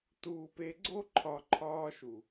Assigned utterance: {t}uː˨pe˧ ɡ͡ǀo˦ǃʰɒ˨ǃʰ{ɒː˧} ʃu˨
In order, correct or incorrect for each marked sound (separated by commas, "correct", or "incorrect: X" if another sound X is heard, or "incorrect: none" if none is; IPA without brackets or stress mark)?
correct, correct